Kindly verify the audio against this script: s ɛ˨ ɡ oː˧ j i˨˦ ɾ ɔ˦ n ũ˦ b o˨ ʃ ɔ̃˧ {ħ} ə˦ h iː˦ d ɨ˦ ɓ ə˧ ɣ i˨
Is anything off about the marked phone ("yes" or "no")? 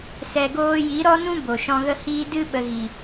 yes